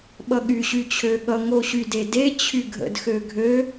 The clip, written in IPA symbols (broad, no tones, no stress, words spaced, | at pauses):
ɓʌɠyɕy t͡ɕʰøɠʌ ŋoɕydede t͡ɕʰyɡʱə̰d xøɡʱø